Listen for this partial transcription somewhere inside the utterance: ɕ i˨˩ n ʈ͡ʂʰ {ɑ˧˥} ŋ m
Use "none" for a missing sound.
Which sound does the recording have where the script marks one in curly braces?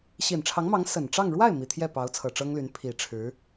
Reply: ɑ˧˥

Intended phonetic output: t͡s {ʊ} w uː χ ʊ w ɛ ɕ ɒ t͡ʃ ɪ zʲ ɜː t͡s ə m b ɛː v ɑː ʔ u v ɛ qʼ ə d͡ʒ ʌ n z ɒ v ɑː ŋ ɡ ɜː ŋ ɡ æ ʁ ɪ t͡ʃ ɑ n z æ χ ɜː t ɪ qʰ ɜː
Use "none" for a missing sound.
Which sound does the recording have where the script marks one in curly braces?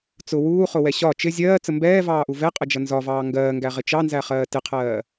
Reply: ʊ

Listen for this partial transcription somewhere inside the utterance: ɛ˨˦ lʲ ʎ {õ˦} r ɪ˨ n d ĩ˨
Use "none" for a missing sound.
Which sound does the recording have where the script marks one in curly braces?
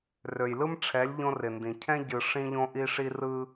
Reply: õ˦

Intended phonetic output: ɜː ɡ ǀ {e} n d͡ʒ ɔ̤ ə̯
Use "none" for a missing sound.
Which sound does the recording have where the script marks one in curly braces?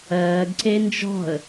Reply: e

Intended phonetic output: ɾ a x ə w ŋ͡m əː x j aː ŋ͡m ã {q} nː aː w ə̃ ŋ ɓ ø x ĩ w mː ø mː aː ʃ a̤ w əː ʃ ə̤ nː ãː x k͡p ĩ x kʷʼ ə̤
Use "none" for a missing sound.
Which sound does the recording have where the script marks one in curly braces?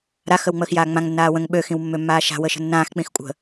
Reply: ŋ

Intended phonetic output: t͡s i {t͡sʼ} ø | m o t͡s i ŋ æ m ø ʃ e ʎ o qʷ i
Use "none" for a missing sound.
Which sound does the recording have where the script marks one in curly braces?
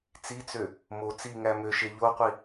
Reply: t͡s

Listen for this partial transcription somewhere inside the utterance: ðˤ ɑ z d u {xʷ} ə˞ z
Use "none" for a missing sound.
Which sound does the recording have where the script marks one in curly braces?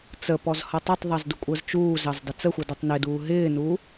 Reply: kʷʼ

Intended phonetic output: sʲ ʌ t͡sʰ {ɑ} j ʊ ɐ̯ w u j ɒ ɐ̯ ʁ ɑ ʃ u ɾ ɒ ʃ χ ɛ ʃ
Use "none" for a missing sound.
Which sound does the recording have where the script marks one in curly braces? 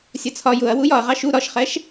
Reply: ɒ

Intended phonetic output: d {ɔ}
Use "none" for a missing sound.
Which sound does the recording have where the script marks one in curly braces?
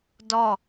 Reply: ɔ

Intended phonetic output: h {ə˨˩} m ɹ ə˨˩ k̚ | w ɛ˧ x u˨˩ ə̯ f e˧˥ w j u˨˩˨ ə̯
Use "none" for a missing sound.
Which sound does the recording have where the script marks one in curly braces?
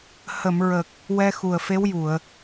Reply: ə˨˩˨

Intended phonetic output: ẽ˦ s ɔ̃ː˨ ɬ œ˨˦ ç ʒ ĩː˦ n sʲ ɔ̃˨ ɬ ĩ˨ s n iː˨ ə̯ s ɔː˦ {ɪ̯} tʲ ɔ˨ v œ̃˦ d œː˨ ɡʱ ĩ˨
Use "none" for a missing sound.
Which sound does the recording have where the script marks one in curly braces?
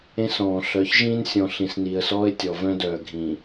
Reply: ɪ̯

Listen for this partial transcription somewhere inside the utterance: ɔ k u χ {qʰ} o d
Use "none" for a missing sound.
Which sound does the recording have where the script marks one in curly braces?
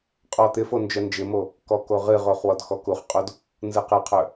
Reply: qʼ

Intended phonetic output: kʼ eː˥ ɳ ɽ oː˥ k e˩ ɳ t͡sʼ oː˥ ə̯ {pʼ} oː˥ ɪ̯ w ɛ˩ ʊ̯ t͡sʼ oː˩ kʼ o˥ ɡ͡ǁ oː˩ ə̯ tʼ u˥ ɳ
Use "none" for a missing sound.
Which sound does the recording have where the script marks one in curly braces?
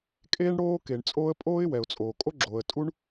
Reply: pʼ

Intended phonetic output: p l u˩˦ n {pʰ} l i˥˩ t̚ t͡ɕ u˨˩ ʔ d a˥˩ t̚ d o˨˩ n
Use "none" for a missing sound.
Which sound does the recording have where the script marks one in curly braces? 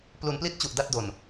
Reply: p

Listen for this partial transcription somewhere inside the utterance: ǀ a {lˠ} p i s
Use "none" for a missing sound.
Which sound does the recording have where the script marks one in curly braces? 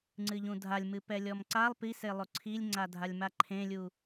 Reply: lˠ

